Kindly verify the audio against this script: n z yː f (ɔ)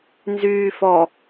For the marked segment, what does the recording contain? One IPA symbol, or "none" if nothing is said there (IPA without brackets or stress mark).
ɔ